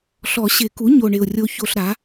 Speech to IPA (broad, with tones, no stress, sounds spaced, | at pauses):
ɬ ɔ˨˩˦ ɕ ɪ˨˩˦ k u˩˥ ɲ o˨˩ ɳ ɪ˨˩ ʊ̯ rʲ o˧ ç o˧ ɬ ɾ a˩˥